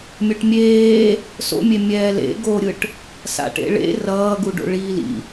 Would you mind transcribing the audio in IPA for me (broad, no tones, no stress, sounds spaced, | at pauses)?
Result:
mʲ o ʈ mʲ eː | s o̰ mʲ e mʲ ɛː l ḛ ɡ o ɾʲ ɯ ʈ | s a̰ ʈ ḛ ɭ ḛ r ʌː ɡ u ɖ o̰ ɭ iː l ḭ